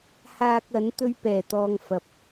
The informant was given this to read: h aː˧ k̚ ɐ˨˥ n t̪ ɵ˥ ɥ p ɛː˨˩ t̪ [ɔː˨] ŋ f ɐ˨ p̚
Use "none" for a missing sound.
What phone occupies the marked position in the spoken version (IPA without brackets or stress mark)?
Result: ɔː˧